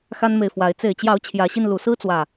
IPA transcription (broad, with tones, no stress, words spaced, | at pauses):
xa˦nme˨ɪ̯fwa˨˦ɪ̯ t͡se˨˩ɪ̯t͡ɕjɑ˨˦ʊ̯ t͡ɕʰjä˨˦ɕi˧nlu˨˩ sɹ̩˦t͡swä˨˩